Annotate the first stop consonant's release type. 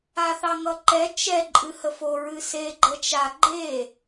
click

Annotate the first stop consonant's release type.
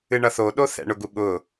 implosive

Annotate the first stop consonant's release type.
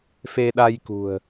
implosive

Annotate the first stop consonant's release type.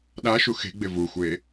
implosive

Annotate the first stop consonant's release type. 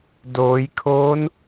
plain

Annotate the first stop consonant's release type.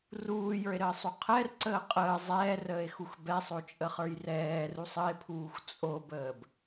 aspirated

